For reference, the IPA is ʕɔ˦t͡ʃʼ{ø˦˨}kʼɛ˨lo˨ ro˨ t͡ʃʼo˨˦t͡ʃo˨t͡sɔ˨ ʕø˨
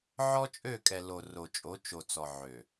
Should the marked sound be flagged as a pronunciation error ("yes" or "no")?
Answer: no